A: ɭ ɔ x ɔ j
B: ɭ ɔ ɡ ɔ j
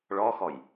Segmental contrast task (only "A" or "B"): A